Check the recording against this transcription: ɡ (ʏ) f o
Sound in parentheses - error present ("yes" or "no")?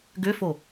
no